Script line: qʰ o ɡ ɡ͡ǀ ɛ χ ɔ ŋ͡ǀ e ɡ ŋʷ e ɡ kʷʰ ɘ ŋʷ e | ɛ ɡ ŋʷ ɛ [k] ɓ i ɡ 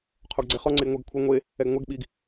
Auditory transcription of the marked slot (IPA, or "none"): ɡ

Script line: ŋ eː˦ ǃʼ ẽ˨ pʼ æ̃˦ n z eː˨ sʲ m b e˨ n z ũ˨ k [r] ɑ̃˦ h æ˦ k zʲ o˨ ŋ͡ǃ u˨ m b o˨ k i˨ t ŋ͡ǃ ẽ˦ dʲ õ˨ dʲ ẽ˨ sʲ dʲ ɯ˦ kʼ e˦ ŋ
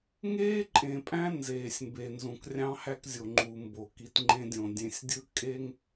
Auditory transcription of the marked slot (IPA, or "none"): rʲ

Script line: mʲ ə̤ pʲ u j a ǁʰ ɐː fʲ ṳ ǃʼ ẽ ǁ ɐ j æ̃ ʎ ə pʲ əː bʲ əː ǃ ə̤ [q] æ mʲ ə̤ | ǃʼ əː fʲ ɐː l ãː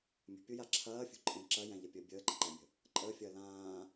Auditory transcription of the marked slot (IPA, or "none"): ǃ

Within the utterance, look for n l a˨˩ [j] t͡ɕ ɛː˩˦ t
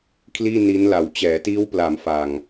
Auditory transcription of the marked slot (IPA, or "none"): w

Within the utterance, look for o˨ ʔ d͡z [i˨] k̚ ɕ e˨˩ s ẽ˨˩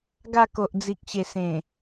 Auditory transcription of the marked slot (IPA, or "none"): i˨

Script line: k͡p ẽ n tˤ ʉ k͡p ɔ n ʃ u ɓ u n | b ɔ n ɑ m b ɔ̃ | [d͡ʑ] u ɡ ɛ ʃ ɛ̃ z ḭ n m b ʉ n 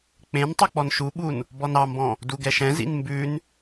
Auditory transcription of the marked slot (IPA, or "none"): d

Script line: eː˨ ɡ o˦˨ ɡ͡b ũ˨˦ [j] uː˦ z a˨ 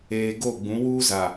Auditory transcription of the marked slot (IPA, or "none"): w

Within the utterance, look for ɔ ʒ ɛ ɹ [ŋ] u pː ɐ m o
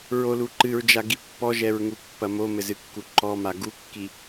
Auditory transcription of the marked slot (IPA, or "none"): ŋ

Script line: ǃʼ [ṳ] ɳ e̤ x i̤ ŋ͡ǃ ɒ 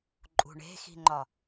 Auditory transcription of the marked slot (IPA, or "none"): ṳ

